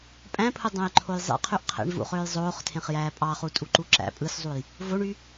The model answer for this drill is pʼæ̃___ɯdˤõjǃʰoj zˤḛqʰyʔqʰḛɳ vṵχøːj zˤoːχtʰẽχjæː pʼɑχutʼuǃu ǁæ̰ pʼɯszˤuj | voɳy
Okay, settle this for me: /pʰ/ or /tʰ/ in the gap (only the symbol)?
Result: pʰ